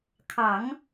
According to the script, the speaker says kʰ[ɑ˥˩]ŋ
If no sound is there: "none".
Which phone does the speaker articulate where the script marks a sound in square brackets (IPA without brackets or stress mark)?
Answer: ɑ˨˩˦